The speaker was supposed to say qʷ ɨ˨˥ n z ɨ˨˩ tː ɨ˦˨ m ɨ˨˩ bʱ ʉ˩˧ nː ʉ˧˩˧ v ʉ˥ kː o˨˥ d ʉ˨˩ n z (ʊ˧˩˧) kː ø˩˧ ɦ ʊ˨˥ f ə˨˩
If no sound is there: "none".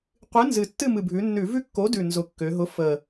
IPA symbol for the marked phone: ʊ˨˩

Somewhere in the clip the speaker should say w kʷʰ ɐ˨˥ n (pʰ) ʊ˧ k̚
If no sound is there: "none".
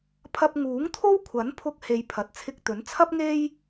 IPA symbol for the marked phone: pʰ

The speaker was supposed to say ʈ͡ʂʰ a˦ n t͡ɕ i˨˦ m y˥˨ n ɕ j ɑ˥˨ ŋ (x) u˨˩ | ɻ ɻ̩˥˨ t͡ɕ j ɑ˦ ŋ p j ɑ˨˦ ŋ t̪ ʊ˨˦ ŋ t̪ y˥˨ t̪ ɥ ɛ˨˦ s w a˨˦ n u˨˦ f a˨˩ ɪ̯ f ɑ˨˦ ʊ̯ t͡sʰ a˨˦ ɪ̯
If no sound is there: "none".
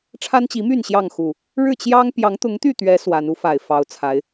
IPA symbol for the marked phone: x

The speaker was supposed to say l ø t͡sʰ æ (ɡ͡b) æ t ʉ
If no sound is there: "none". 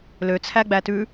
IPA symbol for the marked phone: ɡ͡b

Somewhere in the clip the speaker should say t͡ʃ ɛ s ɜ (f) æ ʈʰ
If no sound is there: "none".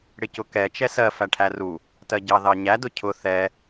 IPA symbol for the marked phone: f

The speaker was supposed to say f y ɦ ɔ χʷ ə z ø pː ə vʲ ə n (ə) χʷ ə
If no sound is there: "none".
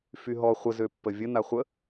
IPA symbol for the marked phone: a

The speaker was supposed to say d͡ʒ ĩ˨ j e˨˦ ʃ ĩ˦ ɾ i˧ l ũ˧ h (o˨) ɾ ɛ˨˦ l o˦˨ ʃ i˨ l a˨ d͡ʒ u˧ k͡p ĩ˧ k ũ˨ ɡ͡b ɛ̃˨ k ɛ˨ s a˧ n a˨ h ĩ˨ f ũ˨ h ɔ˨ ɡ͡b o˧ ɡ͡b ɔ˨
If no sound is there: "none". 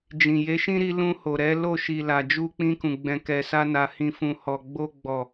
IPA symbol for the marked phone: o˨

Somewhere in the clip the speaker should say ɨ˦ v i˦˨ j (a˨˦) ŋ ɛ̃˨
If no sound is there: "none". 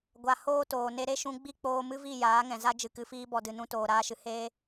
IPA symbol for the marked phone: aː˨˦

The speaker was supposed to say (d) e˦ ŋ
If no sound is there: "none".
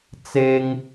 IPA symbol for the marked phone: t͡s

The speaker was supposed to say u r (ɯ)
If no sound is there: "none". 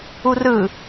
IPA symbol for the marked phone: ɯ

